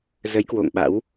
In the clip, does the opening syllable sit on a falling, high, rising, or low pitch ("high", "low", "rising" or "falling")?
rising